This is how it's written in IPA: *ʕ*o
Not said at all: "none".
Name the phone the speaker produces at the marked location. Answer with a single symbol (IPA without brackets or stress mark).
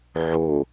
ʕ